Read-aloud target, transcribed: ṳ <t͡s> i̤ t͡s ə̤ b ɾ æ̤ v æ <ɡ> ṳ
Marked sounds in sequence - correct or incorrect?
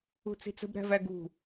correct, correct

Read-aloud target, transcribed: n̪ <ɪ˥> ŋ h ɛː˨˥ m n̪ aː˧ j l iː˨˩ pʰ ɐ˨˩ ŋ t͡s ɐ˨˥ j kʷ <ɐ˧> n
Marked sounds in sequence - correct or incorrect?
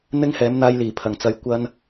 correct, correct

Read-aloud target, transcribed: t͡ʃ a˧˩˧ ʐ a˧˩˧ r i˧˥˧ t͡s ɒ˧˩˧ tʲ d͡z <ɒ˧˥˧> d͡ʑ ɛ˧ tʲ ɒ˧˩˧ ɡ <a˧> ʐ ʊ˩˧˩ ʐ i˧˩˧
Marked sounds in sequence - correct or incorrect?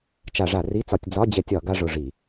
correct, correct

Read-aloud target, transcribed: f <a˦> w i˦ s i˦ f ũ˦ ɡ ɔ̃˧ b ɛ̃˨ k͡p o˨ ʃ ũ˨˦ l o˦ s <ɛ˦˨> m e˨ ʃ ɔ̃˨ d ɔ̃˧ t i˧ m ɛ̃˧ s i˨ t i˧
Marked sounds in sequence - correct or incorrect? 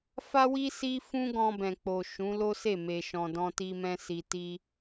correct, incorrect: e˦˨

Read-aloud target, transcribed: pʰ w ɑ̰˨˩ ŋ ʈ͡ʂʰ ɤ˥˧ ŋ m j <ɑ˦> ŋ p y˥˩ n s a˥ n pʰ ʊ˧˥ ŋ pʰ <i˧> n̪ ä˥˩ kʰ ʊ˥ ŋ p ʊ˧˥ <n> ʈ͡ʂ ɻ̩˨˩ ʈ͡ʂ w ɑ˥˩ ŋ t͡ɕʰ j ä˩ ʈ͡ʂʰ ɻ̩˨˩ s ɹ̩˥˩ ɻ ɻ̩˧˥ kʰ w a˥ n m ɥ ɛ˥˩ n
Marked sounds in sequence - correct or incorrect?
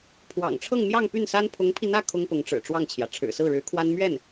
incorrect: ɑ˥˧, correct, incorrect: ŋ

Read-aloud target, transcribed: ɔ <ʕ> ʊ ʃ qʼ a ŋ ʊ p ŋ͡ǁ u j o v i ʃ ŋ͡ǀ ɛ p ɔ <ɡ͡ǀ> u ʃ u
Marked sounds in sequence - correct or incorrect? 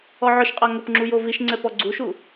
correct, correct

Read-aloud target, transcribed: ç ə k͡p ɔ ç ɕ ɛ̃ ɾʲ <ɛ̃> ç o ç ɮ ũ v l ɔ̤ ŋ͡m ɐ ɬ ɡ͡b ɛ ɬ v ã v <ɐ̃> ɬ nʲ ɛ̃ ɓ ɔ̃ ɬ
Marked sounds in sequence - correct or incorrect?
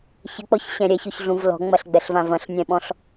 incorrect: ɛ, correct

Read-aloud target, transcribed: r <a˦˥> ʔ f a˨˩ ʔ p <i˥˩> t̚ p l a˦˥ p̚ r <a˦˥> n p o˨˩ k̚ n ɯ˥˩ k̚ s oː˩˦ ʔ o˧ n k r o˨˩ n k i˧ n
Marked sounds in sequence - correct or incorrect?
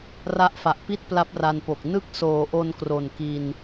correct, correct, incorrect: a˧

